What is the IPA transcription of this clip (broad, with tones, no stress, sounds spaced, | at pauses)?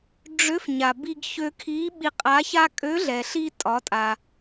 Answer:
ɖ͡ʐ ø˧˥ f ɲ a˩ b i˧ ɡ ç ø˧ kʰ i˧˥ ɓ i˧ qʼ a˧˥ ç a˥ kʼ ø˧˥ ɮ ɛ˩ ɬ i˧ tʼ ɒ˩˧ tʼ a˩